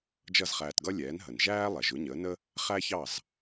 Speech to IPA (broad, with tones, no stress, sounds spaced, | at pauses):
d͡ʒ ʌ˥˩ z χ æː˧ t ɡ ʌ˥ lʲ ɛː˩˥ n ɦ ə˩ n ʒ æː˥ lˠ ɛ˩ ʒ ʊ˩˥ ɲ əː˩˥ n ə˥ | χ æ˥ ç ɑ˥˩ z